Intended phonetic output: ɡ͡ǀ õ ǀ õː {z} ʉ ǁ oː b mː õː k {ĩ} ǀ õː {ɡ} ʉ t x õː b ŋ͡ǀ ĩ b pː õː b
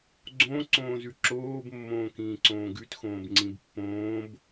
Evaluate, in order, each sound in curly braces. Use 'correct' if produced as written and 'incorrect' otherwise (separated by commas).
correct, incorrect, correct